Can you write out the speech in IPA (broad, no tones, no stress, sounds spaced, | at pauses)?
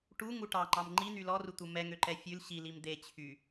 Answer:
ʈ u ŋ u ʈ ɑ ŋ͡ǃ ɑ m ŋ͡ǃ i n̪ y l ɔ r u t̪ u m ɛ ŋ ø ǃ ɛ fʲ ʉ l ɕ i l i m d̪ e t͡ɕʰ y